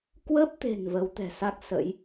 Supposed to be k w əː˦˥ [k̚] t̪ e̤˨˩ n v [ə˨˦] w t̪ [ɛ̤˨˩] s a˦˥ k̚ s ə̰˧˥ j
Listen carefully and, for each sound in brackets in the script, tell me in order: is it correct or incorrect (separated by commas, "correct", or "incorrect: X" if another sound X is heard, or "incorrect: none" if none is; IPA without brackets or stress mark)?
incorrect: p̚, correct, correct